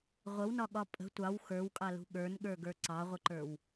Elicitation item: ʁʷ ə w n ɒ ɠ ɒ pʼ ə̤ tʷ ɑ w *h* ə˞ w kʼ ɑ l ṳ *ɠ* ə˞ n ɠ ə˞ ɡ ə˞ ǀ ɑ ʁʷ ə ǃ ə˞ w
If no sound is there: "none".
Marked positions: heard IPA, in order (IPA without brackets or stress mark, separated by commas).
x, ɠ